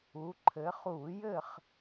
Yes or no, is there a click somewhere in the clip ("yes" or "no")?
yes